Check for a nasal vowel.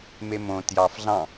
present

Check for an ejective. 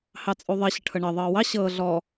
present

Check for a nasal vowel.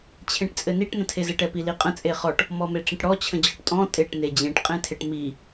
present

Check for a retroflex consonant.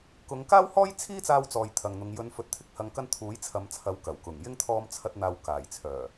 absent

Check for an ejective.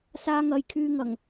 absent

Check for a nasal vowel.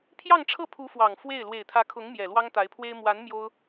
absent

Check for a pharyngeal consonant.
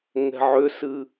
present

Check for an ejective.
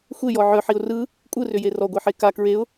present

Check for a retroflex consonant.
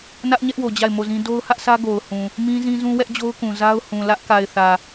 absent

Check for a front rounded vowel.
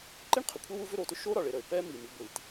present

